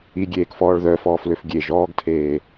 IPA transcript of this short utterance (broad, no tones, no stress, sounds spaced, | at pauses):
i ɡʲ eː k f ɔː ɭ ð œ f ɔː f l ø f ɡʲ e ʒ ɔː ɡ tʰ eː